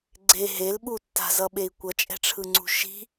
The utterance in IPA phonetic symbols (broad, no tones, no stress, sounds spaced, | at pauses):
ɡ͡ǀ e ɦ e l ɓ u tː a̤ z ʌ ɓ e i̯ kʷ ʌ t͡ʃʼ ɛ̤ ʈ͡ʂʰ ɯ ŋ͡ǀ ṳ ʃ i̤